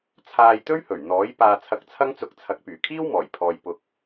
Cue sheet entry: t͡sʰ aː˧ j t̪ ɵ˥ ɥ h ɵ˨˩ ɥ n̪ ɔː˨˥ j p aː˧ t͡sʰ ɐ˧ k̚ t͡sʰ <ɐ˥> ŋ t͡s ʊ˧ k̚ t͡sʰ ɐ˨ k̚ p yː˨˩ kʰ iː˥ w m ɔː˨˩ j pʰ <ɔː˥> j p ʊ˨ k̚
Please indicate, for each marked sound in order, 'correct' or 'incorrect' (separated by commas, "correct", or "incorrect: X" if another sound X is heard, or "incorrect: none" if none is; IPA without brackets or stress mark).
correct, incorrect: ɔː˨